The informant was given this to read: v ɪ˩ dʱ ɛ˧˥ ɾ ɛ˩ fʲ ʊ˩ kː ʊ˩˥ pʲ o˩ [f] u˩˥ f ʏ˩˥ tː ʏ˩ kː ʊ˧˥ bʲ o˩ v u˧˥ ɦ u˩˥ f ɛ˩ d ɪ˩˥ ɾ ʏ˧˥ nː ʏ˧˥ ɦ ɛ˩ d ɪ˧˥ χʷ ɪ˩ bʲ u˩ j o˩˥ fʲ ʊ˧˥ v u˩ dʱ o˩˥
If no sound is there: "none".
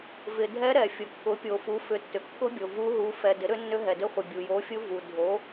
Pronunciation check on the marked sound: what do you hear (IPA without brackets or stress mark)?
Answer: f